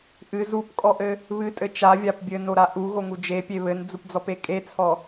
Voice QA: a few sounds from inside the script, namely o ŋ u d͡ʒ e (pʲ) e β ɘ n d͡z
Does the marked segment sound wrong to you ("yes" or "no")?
no